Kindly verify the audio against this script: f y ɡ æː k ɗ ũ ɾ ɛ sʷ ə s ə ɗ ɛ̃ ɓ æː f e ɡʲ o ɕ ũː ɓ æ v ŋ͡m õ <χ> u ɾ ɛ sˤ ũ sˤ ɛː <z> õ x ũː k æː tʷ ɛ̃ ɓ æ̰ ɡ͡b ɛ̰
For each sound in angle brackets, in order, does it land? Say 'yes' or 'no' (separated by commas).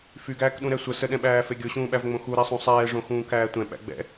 no, no